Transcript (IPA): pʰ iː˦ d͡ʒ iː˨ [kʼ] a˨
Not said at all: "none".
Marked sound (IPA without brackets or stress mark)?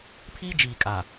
kʼ